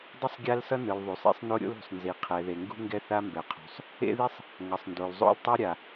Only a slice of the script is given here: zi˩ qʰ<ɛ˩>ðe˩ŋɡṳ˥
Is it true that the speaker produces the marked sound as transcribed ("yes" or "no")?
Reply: yes